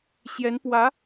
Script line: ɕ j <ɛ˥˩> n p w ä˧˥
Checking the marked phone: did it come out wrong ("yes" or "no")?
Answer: yes